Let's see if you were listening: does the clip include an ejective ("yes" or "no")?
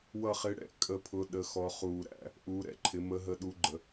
yes